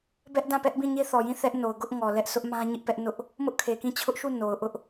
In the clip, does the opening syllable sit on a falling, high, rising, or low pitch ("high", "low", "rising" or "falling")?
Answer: high